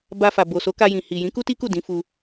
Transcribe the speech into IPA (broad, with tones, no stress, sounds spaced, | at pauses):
b a˧ f a˨ b o˨ s o˨˦ k a˧ j ĩ˨ h i˨ j ĩ˨˦ k u˦ t i˦ k u˦˨ d ĩ˨˦ f u˧